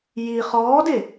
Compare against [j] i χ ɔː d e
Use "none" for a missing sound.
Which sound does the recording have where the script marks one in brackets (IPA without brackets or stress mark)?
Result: j